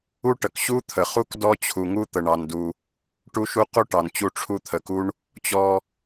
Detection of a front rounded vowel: absent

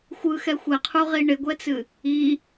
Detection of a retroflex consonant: present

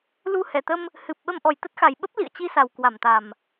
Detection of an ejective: absent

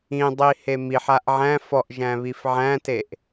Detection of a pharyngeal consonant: present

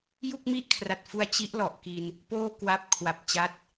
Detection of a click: absent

